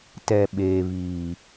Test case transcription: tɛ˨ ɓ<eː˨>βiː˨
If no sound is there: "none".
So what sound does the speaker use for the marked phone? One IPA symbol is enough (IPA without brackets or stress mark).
eː˨